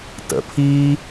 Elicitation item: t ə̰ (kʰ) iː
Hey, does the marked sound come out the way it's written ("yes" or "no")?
no